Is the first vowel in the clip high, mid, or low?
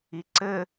high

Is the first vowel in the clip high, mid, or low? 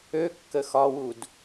mid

